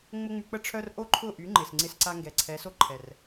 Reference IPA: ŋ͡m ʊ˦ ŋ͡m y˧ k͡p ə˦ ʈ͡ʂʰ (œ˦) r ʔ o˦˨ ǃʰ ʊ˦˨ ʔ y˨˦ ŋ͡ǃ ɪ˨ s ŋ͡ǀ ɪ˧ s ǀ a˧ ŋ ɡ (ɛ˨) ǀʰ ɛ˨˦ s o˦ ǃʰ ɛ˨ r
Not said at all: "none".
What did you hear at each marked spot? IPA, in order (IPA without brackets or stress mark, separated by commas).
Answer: œ˦, ɛ˨